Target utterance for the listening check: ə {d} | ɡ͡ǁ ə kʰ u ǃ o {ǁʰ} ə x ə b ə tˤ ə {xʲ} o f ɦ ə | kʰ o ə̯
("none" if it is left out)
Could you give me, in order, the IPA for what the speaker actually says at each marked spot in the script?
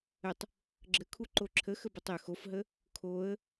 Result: tˤ, ǁʰ, x

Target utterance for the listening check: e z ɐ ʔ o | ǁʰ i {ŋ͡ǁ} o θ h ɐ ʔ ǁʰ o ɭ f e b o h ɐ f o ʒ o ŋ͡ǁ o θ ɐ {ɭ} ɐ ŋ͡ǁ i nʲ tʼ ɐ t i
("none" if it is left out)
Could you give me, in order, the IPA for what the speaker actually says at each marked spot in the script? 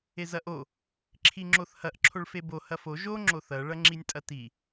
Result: ŋ͡ǁ, ɭ

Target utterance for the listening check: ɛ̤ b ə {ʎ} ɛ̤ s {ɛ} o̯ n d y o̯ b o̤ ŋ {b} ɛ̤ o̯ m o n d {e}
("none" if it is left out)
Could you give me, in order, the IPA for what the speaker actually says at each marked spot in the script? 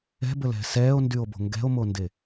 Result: l, ɛː, ɡ, e

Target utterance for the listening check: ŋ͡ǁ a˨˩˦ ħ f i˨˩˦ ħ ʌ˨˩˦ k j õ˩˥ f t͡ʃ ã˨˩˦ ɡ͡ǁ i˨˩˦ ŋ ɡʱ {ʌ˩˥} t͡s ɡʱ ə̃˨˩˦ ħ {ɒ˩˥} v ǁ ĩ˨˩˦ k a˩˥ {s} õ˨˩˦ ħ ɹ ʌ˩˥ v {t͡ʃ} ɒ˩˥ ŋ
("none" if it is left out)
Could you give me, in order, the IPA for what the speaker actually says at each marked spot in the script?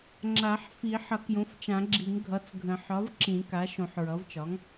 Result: ʌ˩˥, ɒ˩˥, ʃ, t͡ʃ

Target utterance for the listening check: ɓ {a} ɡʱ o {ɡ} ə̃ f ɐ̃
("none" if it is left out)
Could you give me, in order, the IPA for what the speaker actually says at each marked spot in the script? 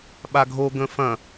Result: a, ɡ

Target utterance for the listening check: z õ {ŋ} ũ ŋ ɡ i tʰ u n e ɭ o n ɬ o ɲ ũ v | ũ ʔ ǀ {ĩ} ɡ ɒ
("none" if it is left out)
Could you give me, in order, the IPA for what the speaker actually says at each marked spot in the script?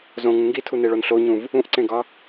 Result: ŋ, ẽ

